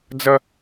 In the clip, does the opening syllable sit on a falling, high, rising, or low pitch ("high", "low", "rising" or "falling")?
high